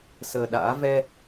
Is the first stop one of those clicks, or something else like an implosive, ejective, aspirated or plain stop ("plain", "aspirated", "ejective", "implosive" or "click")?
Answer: implosive